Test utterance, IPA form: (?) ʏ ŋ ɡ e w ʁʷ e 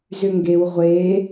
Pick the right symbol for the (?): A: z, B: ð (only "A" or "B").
A